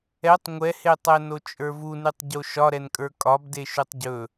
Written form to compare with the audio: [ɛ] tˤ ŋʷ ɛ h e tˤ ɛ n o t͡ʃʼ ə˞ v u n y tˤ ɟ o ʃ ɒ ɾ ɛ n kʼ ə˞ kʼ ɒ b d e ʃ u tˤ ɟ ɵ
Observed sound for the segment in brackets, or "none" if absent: ɛ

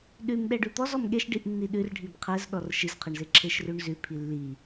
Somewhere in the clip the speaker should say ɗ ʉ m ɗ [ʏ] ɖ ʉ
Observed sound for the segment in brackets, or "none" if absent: ɛ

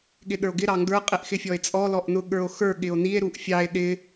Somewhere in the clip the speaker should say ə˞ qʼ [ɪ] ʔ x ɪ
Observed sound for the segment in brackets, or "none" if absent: ɪ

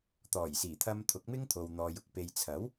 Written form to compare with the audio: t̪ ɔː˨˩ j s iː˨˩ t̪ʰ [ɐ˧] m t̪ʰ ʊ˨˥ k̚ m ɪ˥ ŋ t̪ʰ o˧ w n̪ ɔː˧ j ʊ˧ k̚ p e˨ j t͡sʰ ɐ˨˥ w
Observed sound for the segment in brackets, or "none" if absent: ɐ˧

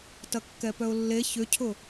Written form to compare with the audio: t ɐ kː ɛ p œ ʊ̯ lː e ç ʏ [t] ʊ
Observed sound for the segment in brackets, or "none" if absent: cʰ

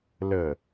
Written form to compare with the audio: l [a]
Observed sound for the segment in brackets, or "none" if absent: ə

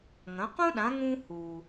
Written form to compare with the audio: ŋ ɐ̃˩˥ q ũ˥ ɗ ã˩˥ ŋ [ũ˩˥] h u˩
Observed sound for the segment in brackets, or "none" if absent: ũ˧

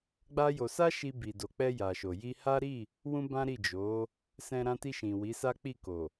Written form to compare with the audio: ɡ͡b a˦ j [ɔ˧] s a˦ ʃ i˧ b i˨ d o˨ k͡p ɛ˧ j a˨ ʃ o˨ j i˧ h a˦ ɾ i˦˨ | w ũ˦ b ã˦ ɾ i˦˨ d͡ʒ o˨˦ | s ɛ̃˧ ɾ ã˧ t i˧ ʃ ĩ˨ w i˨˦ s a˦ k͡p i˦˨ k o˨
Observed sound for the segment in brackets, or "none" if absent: o˧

